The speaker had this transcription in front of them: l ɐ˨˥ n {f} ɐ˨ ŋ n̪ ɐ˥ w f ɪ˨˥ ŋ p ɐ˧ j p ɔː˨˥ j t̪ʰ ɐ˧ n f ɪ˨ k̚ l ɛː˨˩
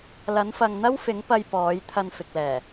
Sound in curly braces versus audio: correct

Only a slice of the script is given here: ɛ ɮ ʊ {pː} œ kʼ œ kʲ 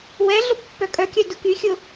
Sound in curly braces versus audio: correct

